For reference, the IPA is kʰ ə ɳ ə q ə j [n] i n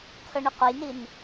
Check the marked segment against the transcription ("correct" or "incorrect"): correct